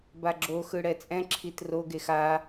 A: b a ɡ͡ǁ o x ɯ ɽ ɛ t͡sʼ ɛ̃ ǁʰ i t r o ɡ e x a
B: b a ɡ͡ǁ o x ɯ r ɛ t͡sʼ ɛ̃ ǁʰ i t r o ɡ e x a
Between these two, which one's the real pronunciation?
A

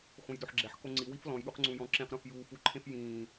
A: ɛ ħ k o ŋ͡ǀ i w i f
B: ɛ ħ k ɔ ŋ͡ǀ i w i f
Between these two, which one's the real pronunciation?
A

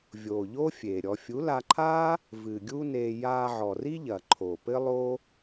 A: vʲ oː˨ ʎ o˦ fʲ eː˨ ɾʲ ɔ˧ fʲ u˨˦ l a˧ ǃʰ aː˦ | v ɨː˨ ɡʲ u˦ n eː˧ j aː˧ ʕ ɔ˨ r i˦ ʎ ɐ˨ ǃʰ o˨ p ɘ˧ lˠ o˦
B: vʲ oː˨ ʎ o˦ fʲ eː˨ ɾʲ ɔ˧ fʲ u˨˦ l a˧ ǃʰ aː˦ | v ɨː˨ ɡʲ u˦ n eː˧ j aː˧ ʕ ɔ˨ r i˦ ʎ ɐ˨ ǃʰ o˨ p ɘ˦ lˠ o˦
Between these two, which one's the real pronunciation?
B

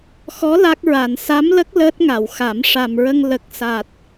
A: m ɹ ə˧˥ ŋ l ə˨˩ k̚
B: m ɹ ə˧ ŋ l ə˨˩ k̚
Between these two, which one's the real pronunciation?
B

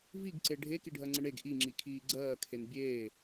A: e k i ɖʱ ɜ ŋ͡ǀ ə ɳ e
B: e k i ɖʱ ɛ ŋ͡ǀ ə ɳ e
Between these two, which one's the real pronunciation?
A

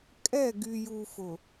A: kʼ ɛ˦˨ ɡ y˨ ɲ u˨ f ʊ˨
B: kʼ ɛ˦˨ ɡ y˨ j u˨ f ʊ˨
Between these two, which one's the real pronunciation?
B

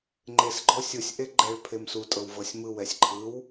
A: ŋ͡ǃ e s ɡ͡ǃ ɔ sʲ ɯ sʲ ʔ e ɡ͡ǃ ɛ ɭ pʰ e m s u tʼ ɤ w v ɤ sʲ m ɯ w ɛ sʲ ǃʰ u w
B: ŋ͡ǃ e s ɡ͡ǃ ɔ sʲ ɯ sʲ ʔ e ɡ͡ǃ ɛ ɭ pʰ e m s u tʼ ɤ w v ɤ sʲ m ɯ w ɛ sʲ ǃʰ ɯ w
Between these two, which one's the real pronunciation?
B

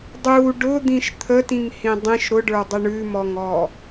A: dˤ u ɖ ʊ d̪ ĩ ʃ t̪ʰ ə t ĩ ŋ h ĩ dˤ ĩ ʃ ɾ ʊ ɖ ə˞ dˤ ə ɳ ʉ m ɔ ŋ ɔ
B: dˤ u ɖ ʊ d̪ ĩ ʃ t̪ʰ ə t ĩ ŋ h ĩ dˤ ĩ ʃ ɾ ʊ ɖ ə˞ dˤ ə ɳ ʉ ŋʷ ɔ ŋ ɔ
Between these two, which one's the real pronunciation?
A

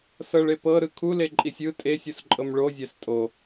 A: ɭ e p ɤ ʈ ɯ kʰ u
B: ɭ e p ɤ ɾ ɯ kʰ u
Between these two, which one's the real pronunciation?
B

